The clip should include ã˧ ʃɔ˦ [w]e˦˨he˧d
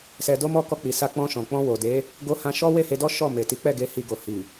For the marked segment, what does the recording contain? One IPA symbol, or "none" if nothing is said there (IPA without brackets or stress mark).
w